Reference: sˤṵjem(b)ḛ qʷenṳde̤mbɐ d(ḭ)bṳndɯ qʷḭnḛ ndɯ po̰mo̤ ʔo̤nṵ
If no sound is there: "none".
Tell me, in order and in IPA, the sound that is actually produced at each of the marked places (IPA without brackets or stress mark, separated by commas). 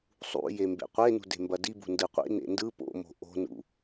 b, i